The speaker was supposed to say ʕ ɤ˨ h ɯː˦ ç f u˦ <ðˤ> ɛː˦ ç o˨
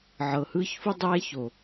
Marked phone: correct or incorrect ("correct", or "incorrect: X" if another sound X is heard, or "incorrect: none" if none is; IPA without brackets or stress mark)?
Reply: incorrect: dˤ